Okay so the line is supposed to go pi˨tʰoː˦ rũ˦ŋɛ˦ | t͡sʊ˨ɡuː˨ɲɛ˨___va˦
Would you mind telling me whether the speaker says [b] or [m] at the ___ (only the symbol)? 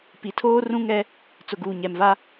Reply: m